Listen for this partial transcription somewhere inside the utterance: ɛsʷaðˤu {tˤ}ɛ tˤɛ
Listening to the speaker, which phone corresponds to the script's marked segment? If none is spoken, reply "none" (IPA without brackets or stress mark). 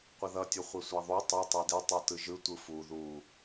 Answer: tˤ